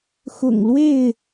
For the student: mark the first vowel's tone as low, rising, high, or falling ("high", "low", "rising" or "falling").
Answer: low